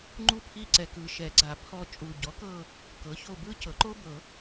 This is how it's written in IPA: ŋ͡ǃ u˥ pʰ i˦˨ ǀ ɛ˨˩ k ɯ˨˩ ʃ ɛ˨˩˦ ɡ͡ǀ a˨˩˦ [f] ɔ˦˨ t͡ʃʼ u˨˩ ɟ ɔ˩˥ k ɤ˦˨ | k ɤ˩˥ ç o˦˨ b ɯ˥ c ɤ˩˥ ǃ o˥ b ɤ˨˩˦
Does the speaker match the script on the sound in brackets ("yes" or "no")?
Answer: no